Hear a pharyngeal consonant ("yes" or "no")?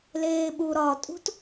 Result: no